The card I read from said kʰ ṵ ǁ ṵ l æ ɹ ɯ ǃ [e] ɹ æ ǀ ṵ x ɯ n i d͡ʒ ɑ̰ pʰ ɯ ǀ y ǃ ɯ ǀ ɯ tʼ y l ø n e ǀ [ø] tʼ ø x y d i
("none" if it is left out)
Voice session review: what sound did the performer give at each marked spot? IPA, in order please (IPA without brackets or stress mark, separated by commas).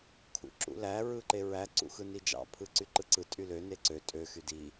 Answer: e, ø